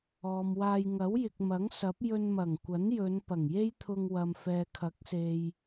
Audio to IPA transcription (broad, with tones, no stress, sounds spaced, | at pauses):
ɔː˨ m w aː˧ j ŋ ɐ˨˥ w j ɪ˨ k̚ m ɐ˨˥ ŋ s ɐ˨˥ p̚ j ɵ˧ n m ɐ˨˩ ŋ kʷ ɐ˨˥ n j ɵ˨˧ n p ɐ˨˩ ŋ j e˥ j t̪ʰ ʊ˧ ŋ w ɐ˨ m f ɛː˨ kʰ ɐ˨˥ k̚ s e˨ j